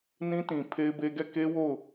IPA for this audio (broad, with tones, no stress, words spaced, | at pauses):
nĩ˦tĩ˨ pʰe˦ɪ̯be˦ ɡɛ˦˨ ke˦wo˦˨ʊ̯